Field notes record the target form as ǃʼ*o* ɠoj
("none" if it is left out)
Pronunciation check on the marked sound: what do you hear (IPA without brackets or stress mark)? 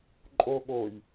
o